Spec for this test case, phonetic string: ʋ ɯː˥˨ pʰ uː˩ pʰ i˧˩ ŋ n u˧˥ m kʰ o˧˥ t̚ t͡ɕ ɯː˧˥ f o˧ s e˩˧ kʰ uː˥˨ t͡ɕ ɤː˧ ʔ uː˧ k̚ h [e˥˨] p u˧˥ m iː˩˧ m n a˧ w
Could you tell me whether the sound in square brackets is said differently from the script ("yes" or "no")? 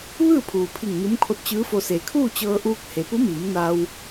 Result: yes